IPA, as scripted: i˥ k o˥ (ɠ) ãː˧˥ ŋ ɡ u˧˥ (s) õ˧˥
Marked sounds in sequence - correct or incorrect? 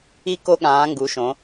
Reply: correct, incorrect: ʃ

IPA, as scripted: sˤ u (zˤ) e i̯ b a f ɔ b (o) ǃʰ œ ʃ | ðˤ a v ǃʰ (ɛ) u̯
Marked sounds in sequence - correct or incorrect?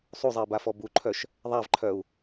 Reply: correct, incorrect: u, incorrect: œ

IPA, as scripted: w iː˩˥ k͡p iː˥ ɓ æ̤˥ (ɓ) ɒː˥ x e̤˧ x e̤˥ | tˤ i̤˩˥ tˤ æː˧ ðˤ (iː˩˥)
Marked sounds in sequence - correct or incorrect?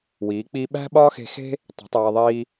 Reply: correct, incorrect: iː˧

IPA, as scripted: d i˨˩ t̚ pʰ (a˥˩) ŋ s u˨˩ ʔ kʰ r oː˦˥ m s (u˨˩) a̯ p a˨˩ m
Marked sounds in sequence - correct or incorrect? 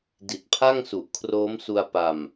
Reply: correct, incorrect: u˧

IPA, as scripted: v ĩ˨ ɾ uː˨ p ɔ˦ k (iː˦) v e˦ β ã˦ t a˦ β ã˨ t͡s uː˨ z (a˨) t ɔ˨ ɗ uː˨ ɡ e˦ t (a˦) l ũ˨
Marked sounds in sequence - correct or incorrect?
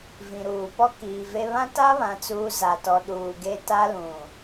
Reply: incorrect: iː˨, correct, correct

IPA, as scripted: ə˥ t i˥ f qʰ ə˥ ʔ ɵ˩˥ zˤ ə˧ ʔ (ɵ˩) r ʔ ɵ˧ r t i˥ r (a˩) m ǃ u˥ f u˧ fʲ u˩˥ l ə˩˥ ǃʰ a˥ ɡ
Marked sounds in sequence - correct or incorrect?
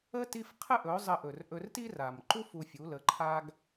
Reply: correct, correct

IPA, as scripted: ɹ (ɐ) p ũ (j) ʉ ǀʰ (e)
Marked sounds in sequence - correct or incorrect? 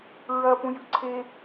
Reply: correct, correct, correct

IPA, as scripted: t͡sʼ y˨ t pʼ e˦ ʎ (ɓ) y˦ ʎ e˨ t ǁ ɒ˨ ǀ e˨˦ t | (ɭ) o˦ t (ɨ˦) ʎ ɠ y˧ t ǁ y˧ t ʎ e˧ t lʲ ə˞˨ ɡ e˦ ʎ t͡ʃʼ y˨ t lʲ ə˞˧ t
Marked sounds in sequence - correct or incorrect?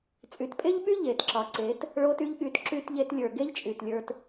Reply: correct, correct, incorrect: y˦

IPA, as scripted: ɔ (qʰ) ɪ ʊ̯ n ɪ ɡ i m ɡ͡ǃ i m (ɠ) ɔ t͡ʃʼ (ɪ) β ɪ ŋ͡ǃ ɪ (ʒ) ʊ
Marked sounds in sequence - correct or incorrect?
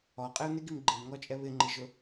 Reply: incorrect: qʼ, incorrect: ŋ, incorrect: ɛ, correct

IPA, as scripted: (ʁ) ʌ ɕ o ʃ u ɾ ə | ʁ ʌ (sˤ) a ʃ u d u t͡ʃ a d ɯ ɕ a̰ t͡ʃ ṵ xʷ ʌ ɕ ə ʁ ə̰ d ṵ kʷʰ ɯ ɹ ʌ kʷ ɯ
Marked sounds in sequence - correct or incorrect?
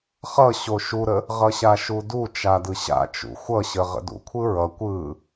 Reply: incorrect: χ, incorrect: ɕ

